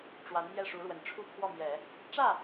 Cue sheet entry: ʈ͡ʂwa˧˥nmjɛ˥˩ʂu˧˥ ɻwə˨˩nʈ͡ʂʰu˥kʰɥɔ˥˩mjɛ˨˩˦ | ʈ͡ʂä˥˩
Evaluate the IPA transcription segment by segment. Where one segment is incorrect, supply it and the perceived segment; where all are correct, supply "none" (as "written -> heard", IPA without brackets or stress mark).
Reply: ɥ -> w